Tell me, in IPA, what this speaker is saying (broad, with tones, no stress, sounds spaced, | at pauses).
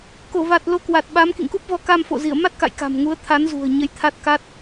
k o˧˩ v a˨˩ t̚ l o˨˦ k w a˨˩ t̚ ɓ a˨˦ m k ḭ˧˨ ŋ k u˦˥ p̚ v ɔ˧ k a˧ m f o̰˧˨ z i˧˩ ə̯ m a˦˥ t̚ k a̰˧˨ j k a̤˨˩ m ŋ u˨˦ ə̯ t̪ʰ a˨˦ n z ṳ˨˩ ə̯ ɲ ə˨˦ j t̪ʰ a˦˥ t̚ k a˦˥ t̚